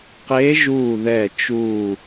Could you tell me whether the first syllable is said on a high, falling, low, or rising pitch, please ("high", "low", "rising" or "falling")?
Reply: rising